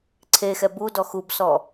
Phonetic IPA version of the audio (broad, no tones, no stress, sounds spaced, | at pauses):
ǀʰ e x ɛ b u d ɔ x u b s ɔ